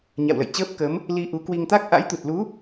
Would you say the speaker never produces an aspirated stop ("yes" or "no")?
yes